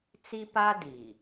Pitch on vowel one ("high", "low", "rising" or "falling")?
high